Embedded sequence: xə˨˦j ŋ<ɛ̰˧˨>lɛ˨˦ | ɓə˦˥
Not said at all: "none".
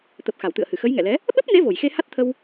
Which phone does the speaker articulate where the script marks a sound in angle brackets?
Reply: ɛ̰˧˨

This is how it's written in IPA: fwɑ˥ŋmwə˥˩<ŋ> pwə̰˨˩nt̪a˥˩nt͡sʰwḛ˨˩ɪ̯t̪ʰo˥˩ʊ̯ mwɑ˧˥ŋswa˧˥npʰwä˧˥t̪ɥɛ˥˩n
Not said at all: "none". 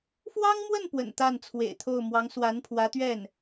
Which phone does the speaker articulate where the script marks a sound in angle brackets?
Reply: n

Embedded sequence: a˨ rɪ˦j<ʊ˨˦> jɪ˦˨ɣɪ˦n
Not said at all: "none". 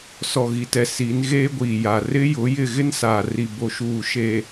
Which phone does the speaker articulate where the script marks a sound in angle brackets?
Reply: ʊ˨˦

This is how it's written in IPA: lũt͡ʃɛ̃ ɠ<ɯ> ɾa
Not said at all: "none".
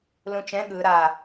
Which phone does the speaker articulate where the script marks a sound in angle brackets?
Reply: ɯ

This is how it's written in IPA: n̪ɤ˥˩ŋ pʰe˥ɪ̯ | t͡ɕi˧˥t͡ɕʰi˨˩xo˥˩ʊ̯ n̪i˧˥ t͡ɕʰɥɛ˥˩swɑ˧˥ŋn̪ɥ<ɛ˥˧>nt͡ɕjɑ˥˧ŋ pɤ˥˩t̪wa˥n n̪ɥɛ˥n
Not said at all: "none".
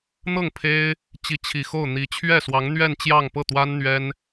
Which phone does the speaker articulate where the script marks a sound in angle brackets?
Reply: ɛ˥˧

